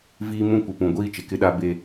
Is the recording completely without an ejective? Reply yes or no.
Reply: yes